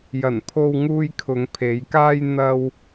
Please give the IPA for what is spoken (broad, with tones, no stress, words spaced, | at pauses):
jɐ˨˩npʰo˧wŋuː˧j kʰʊ˨˧ŋpʰe˨˧j kaː˧j n̪ɐ˧w